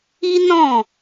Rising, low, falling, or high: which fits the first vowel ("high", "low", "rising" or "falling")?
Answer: high